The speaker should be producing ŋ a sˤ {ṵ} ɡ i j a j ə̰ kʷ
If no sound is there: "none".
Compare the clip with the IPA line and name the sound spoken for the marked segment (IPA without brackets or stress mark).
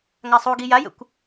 u